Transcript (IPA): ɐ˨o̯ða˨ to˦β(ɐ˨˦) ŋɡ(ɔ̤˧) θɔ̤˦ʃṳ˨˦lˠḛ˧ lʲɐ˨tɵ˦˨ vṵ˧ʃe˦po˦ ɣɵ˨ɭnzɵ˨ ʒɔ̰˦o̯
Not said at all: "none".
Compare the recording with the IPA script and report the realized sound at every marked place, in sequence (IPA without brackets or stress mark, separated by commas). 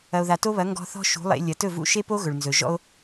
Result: ɐ˨˦, ɔ̤˧